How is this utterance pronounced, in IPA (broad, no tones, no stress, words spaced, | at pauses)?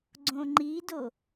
ɡ͡ǀõŋ͡ǃido